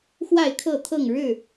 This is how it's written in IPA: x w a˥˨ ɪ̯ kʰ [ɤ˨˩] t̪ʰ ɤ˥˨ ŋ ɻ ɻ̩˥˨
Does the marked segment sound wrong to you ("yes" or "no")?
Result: yes